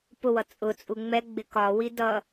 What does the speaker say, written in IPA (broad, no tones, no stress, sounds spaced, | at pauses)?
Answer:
p ʊ w ʌ t͡sʼ ʊ t͡sʼ u ŋ͡m ɛ ɡ͡b ɪ k ɒ w i d ʌ